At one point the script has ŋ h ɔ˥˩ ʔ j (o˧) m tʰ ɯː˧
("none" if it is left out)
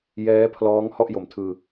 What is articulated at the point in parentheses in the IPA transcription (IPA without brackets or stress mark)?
o˨˩